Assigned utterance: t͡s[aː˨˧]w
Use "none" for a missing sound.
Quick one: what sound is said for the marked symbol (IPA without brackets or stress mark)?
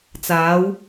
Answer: aː˨˧